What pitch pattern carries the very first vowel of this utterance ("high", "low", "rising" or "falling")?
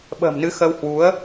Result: low